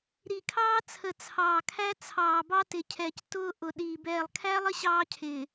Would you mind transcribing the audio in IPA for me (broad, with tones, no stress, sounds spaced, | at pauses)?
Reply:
ɾ i˨ kʰ ɑː˦ t͡sʰ ə˨ t͡sʰ ɑː˨ kʰ æ˦ t͡sʰ ɑː˨ b ɑ˦ t ɪ˨ cʰ ɛː˨ c t ʊː˦ ʔ ʊ˨ ɗ iː˨ b ɛː˨ lˠ kʰ æ˦ lˠ ə˦ ɕ ɑː˦ cʰ ɪː˨